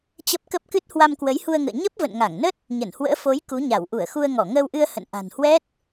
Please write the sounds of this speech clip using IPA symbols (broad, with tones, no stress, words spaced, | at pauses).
t͡ɕə˦˥p̚ kə˦˥p̚kɨ˦˥t̚ hwa˧mkwə˨˦jhu˧ə̯ŋə̰ː˧˨ ɲə˦˥p̚və̰˧˨nŋa˧˩ŋnə˦˥t̚ | ɲə˧˩nhwə̰ː˧˥ fo˨˦j ku˨˦ɲa˧˩w ʔu˧˩ə̯xu˧ə̯ŋɔ˧˩ ŋəː˧wʔɨ˧ə̯ hə̰˧˨nʔa̤˨˩nhwɛ˦˥t̚